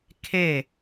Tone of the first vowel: falling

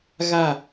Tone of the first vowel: falling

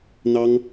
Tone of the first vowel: high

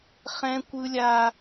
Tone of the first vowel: high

